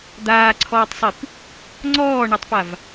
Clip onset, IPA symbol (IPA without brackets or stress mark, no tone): d̪